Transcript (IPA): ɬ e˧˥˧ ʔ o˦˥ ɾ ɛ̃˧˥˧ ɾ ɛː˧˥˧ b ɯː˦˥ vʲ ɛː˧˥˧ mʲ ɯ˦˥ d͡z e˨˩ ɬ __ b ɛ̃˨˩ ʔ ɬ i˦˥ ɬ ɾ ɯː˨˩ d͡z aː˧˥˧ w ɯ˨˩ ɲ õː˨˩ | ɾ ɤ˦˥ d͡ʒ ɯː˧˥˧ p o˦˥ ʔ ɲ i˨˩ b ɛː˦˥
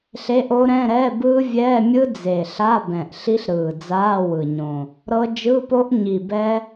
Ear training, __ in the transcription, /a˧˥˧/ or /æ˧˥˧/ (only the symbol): a˧˥˧